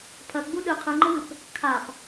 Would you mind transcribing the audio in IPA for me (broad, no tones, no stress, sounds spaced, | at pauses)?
pʰ ɐ ɡ͡b u ɗ ɨ qʰ ɨ ŋ͡ǃ ɘ w ɨ p | kʰ a p